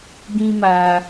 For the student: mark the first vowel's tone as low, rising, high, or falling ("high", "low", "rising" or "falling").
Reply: high